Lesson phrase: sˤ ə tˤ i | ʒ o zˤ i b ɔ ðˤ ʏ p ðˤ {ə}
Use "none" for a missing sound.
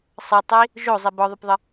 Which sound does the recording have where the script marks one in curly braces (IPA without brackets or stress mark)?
ə